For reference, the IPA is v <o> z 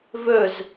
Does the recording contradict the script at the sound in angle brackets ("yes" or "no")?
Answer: yes